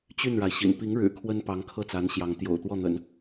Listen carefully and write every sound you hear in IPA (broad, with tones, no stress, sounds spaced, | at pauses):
t͡ɕ y˥˩ n ɻ a˩ ɪ̯ ɕ ḭ˨˩ n p i˧˥ ŋ ɻ ɻ̩˨˩ kʰ w ə˥ n p ɑ˧˥ ŋ kʰ ɤ˥˩ t͡s a˧˥ n ɕ j ɑ˧˥ ŋ t̪ j o̰˨˩ ʊ̯ t̪ w ɔ˥˩ n̪ ə̰˨˩˦ n